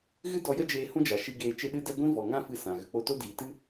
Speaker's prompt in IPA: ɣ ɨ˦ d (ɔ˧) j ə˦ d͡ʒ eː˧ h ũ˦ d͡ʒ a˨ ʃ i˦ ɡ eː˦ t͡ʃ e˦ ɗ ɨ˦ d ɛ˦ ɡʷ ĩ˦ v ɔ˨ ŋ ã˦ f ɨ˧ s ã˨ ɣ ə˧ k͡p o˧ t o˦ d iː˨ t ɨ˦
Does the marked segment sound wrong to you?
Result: no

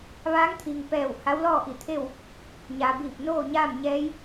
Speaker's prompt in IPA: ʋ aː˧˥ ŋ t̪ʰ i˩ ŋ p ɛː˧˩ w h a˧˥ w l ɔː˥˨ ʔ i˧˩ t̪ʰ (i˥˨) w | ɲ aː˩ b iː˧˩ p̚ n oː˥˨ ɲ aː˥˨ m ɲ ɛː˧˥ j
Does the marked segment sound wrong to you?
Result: yes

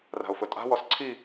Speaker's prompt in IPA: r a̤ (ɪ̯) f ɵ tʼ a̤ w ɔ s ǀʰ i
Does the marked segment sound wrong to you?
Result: yes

